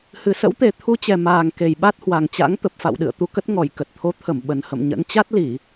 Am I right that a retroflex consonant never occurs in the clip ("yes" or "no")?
yes